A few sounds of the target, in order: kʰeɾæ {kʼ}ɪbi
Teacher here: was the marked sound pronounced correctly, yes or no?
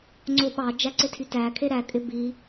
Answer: yes